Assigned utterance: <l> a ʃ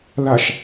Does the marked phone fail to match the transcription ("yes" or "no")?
no